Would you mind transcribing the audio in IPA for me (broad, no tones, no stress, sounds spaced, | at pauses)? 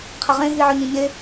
qʰ ɛ ʁ ẽ ɦ i ʕ œ ɲ ĩ ɲ e